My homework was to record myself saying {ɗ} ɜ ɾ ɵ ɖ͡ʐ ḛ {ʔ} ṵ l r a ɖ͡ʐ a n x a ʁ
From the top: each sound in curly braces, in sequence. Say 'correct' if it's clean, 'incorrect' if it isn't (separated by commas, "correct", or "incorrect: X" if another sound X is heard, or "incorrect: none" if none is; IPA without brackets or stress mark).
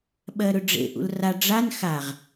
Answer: incorrect: ɓ, correct